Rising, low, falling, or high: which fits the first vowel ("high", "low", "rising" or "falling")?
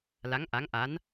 rising